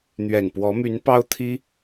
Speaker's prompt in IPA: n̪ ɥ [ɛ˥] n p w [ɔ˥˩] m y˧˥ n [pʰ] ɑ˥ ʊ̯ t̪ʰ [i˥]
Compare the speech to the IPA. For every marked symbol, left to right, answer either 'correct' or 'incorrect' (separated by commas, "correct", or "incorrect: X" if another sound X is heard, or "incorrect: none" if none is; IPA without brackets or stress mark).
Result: incorrect: ɛ˨˩, incorrect: ɔ˧˥, incorrect: p, correct